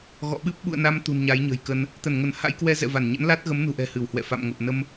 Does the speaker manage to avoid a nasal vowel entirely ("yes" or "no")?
yes